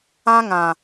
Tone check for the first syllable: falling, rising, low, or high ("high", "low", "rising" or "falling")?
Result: high